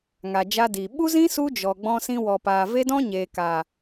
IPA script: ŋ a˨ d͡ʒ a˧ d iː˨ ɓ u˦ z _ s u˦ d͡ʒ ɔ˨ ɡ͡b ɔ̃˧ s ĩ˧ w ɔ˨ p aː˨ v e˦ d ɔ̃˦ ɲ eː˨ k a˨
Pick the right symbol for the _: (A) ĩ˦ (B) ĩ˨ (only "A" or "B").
A